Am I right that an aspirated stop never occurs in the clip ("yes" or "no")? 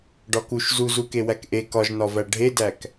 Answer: yes